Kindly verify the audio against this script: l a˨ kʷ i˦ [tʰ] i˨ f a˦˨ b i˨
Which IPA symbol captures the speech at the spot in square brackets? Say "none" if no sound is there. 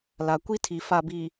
tʰ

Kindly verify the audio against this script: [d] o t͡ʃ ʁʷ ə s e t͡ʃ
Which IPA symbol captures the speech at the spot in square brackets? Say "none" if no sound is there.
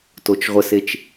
t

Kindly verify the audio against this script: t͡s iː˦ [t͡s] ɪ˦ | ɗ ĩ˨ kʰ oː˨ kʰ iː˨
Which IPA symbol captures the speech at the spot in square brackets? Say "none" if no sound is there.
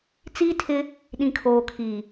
tʰ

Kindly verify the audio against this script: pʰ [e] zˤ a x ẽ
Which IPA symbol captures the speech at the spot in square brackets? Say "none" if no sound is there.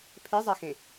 e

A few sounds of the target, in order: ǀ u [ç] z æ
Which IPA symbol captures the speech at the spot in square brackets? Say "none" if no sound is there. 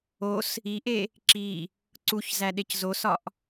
ç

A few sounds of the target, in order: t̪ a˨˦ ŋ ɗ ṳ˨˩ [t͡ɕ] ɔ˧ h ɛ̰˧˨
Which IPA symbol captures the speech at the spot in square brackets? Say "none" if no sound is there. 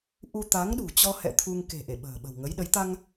t͡ɕ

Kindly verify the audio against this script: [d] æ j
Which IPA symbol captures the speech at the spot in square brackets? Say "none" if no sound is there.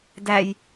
d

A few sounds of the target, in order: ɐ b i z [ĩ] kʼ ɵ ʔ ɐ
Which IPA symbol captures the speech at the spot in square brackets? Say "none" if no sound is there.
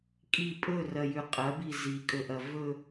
i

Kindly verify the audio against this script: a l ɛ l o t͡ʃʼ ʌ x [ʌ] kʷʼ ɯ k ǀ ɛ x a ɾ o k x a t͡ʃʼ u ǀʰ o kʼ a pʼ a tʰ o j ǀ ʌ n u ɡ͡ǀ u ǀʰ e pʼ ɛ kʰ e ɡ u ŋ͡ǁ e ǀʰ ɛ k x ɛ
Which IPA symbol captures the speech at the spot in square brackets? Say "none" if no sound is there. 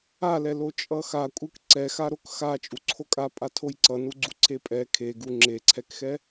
a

